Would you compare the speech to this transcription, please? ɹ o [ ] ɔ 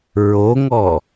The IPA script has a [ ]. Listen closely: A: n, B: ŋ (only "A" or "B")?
B